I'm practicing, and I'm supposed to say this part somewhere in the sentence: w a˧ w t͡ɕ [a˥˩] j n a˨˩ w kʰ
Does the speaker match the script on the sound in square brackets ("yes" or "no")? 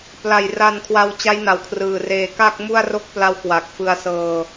no